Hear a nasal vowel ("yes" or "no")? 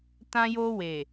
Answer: yes